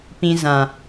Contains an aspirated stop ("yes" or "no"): no